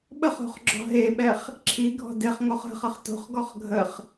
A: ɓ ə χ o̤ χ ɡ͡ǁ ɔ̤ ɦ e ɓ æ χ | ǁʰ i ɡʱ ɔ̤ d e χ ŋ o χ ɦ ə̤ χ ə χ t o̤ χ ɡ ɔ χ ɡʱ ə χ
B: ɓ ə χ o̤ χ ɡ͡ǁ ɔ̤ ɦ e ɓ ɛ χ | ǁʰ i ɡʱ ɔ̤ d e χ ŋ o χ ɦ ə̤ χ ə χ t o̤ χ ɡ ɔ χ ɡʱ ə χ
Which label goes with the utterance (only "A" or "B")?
B